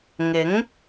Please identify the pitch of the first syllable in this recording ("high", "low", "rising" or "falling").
rising